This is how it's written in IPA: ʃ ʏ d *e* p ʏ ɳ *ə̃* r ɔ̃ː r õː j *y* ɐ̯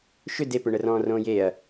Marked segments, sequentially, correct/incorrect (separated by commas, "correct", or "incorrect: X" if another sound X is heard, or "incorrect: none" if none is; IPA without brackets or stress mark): correct, incorrect: ə, incorrect: e